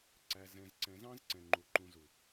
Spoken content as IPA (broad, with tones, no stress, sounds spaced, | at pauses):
ǀ æ˨ z ɛ̃˨ z ǀ ɛ̃˨ z ɑ̃˦ z ǀ ɛ̃˨ ŋ͡ǃ u˨ ǃ ũ˨ z u˨